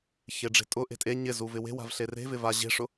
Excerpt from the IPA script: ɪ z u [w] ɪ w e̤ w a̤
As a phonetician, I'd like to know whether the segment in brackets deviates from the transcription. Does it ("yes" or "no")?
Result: yes